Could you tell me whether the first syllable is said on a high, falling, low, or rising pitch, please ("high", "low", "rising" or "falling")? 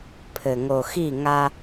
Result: low